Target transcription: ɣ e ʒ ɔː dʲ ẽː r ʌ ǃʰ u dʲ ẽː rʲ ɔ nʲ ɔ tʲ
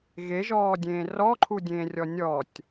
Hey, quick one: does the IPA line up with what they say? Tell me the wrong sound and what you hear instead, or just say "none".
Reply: ʌ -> ɔ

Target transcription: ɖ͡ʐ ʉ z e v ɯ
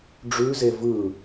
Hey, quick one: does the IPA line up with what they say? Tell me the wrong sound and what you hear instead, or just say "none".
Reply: none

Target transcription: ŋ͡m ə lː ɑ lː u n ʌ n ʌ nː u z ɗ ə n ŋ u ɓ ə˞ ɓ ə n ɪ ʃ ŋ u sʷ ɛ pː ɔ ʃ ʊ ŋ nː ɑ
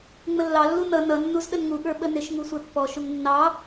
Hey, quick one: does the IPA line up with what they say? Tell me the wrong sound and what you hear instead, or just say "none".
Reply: none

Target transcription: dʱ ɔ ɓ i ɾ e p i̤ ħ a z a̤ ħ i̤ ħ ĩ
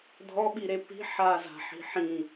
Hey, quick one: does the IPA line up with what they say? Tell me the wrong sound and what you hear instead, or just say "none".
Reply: none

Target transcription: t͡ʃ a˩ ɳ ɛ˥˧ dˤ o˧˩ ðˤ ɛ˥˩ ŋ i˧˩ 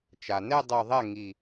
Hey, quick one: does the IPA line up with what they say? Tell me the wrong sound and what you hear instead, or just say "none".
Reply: ɳ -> n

